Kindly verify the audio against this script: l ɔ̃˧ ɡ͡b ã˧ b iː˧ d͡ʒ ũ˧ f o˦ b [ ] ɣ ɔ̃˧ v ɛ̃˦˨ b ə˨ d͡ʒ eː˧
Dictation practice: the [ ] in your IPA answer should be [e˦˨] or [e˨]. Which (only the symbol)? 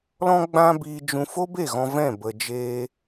e˦˨